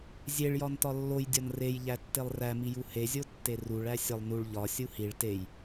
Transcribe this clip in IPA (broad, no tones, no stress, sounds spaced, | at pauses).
zʲ e ɭ j ɒ n t ɒ lː o j dʲ ɒ n r e j ʎ æ tː e lˠ r æ m i j u h e zʲ o tː e r u ɭ æ sʲ ɒ lˠ n u ɭ ʎ ɒ sʲ u h i ɭ t e j